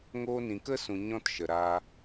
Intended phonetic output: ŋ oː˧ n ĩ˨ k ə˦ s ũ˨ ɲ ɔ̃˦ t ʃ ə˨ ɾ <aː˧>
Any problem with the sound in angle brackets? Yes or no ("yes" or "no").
no